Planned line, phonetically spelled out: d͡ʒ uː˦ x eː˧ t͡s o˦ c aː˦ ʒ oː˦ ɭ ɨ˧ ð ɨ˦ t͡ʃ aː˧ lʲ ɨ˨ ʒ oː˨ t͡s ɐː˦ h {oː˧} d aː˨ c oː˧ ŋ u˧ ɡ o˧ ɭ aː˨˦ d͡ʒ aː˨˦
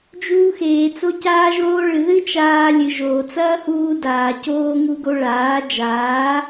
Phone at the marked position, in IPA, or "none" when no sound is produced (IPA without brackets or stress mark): uː˧